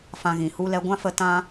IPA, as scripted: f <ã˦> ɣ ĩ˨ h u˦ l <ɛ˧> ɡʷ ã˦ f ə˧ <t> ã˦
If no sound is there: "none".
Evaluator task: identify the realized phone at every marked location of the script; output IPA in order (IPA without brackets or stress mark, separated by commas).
ã˧, ɛ˧, t